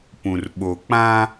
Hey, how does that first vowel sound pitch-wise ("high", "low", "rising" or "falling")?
low